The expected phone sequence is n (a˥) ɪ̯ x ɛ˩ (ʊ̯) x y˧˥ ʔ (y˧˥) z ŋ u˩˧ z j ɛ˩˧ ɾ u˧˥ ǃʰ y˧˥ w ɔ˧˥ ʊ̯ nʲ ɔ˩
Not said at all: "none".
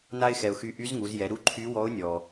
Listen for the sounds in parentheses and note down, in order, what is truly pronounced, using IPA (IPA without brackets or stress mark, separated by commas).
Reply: a˥, ʊ̯, y˧˥